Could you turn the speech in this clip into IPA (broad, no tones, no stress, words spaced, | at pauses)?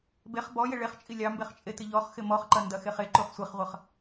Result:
beχ bɔjɪ ɭeχt͡ʃʼi lʲɑmbeχt͡ʃʼetɪ ʎɔχxɪ mɔχǃɐndɐxeχ eǃuχ sʷeχʁʷɐχ